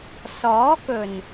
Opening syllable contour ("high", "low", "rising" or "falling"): rising